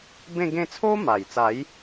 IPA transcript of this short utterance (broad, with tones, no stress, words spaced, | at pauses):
bẽ˥˧ɡẽ˥˧ t͡sʰo˦ma˨˩jt͡sa˨˦j